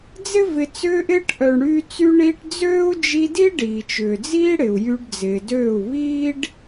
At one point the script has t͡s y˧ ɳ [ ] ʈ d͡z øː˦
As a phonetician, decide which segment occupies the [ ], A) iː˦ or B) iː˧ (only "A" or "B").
B